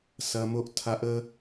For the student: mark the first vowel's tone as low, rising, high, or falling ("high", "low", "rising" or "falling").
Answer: high